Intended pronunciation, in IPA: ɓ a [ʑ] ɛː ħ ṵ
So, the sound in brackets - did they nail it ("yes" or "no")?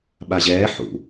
yes